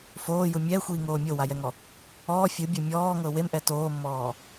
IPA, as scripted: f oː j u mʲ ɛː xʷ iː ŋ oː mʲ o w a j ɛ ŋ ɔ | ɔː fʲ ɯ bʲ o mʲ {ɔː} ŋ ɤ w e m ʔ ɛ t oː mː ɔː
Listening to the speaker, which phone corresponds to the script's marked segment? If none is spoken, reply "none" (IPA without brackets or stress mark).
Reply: ɔː